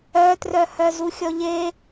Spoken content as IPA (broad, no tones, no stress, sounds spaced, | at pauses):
œ t r œ h œ z u xʲ ɔ ʎ e